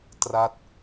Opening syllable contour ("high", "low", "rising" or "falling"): falling